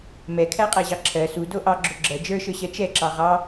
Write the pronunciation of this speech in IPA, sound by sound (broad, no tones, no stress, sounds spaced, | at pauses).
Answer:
m ɛ kʰ æ qʼ æ ʑ ɑ ǁʰ ɜ s u d o ʔ ɑ ɡ͡ǁ o ɡ͡ǁ ɜ d͡ʒ ə˞ ʃ ə˞ ɕ ɜ t͡ʃ ɛ ǁ ɑ ʁ ɑ